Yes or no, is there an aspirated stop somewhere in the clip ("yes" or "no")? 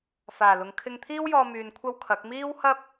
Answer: yes